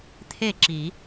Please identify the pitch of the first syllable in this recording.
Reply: falling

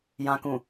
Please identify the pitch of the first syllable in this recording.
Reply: low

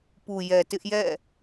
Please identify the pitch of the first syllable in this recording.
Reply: low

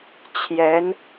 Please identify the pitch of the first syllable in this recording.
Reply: rising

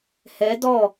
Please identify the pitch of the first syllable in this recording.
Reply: rising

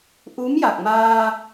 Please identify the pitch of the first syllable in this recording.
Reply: rising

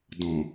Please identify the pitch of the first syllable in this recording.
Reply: low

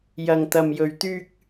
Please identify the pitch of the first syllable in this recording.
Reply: high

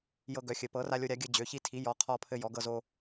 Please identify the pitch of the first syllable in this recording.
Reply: high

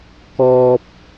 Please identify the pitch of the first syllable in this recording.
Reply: high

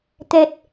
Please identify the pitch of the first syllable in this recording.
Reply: low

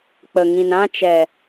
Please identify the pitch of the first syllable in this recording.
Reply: low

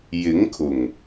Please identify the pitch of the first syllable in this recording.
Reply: rising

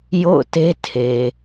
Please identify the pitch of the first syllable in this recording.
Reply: falling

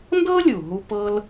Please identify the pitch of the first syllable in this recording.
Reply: high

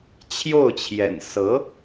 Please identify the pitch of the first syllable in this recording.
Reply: falling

